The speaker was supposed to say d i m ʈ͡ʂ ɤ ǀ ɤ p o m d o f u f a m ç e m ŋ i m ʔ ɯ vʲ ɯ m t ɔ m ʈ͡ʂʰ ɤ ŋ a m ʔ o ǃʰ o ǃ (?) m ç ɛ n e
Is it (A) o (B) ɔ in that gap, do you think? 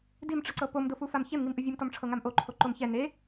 A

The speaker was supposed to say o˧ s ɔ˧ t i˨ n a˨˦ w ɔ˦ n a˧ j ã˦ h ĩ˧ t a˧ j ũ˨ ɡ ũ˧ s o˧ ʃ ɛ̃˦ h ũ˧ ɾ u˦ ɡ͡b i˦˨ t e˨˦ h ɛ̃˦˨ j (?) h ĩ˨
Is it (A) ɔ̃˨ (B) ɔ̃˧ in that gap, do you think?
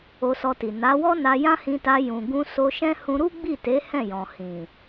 A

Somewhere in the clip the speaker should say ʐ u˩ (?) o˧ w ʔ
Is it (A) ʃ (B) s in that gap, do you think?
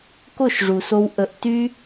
B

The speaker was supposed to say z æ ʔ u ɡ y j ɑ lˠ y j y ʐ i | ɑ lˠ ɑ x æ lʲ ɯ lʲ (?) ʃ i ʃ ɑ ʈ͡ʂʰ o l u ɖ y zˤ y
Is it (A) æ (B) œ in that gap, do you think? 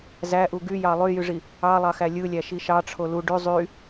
A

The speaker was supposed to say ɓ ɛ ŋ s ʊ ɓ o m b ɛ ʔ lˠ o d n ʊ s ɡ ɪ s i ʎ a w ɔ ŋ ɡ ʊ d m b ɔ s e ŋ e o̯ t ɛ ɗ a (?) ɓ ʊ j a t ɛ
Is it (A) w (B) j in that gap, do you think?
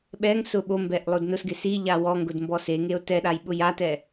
B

